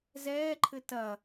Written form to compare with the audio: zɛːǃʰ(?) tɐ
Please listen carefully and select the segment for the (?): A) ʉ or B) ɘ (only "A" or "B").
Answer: B